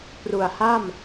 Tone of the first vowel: low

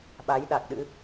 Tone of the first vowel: rising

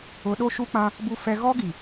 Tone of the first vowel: rising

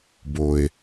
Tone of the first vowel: high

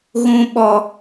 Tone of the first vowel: high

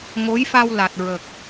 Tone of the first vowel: rising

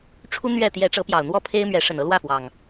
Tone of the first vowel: high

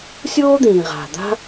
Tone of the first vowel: high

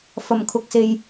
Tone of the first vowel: low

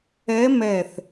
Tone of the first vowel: rising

